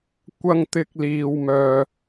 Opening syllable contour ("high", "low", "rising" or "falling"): high